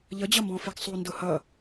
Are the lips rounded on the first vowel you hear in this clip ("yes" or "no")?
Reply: no